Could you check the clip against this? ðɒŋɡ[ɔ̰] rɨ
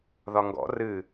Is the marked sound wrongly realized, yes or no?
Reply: no